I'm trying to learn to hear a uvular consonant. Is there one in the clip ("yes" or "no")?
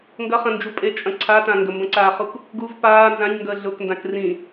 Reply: yes